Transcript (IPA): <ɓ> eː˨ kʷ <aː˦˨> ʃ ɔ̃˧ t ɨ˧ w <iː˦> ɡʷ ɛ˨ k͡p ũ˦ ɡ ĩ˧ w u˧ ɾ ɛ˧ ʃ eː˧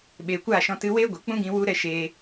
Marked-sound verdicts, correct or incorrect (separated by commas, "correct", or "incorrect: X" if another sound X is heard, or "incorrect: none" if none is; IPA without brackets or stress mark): correct, correct, incorrect: eː˦